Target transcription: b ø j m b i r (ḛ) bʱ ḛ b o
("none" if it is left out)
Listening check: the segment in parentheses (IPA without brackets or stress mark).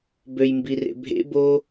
ḛ